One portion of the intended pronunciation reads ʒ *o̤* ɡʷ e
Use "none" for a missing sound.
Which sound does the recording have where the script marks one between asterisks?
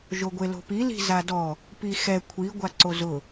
o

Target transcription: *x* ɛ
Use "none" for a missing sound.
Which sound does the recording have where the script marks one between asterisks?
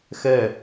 x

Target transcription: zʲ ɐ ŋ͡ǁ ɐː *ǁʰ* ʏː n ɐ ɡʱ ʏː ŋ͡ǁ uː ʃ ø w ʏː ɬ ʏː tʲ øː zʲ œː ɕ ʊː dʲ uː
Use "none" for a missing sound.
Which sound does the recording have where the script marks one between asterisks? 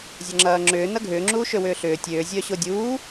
ŋ͡ǁ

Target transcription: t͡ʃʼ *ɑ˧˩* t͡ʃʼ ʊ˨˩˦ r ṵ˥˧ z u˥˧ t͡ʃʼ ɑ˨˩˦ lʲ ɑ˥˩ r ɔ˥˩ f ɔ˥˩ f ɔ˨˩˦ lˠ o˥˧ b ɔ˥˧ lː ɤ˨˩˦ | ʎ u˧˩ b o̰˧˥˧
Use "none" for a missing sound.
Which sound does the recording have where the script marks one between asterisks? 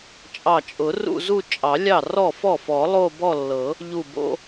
ɑ˧˩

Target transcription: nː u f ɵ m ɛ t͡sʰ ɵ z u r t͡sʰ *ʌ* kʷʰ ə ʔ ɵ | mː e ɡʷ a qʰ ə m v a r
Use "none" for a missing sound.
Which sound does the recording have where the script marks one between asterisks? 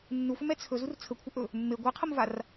ə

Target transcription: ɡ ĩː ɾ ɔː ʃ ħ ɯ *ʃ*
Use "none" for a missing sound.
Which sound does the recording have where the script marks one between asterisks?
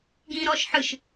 ʃ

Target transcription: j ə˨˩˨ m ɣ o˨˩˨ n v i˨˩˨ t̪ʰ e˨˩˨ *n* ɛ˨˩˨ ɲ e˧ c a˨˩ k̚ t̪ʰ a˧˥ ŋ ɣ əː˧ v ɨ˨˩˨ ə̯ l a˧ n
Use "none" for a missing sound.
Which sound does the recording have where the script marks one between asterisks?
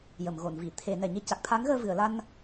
n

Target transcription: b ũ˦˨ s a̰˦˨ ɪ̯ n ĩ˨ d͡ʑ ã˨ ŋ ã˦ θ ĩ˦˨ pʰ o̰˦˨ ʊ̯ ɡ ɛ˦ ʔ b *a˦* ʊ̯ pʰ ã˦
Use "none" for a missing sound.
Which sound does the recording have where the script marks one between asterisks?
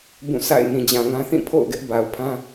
a˨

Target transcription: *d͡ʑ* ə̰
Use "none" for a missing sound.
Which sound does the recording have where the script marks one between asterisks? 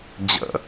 d͡ʑ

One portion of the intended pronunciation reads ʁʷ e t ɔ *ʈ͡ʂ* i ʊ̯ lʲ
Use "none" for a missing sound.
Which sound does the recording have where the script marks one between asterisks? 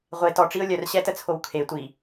ʈ͡ʂ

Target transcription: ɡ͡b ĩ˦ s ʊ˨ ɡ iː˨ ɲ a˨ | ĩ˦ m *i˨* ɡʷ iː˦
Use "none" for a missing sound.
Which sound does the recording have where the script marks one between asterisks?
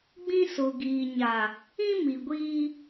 i˨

